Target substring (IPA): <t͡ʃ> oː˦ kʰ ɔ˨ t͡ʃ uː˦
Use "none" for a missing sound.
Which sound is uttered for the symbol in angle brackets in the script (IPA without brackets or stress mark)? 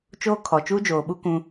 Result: t͡ʃ